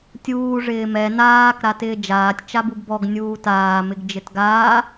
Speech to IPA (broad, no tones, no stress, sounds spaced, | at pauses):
tʲ uː ʐ ɪː m ɛ n aː k ɾ a t ɪː d͡ʒ aː tʲ t͡ʃ a b u ɡ b ɔ ɡ nʲ uː t aː m ɪ ɡ d͡ʒ ɪ t ɡ aː